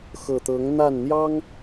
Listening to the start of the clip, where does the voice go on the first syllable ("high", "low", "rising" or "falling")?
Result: low